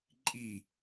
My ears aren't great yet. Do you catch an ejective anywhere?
yes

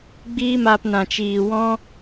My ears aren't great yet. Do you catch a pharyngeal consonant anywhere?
no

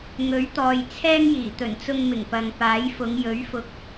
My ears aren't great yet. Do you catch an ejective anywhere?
no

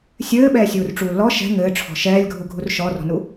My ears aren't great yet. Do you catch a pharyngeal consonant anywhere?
no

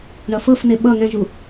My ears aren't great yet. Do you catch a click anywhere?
no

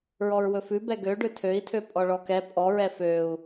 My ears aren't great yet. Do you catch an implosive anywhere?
no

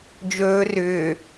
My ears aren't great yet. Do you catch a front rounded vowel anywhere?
yes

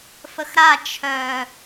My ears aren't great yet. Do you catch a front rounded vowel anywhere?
yes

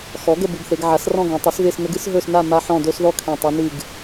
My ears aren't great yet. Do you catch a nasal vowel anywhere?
yes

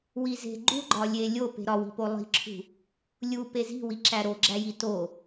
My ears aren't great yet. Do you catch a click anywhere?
yes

